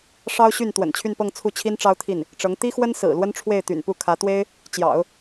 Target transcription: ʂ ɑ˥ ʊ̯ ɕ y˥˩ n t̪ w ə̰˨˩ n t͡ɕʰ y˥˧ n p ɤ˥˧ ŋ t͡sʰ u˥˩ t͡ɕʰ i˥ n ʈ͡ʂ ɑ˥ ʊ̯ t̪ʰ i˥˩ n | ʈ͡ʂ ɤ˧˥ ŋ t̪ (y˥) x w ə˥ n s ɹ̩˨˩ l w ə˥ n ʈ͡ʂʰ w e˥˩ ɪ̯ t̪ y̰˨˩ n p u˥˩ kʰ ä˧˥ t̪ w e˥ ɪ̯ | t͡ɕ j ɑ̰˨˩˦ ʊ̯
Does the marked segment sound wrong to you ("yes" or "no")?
yes